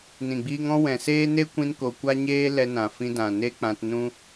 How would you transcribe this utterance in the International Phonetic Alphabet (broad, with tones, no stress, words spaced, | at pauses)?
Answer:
nĩ˨ɡ͡biː˧ŋɔ̃˦ wɛ̃˨seː˦ ne˦kʷĩ˧nko˨ kʷa˦ɲeː˦ lɛ˧nã˨fĩ˧dã˨ ne˦ k͡pã˧t nũ˦